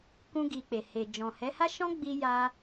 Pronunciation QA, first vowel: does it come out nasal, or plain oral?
nasal